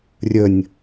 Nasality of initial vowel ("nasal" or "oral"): oral